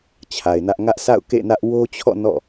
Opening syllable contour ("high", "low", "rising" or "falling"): low